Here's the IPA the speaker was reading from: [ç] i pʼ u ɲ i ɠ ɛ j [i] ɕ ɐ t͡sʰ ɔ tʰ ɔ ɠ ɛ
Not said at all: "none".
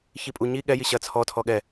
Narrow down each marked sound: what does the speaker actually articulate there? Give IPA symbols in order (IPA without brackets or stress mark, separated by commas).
ç, i